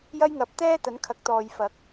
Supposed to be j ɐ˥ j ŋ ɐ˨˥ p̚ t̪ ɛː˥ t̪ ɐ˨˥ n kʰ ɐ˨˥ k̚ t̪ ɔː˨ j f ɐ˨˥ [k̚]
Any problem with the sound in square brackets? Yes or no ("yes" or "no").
no